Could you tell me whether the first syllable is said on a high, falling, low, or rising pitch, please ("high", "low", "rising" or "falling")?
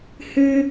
high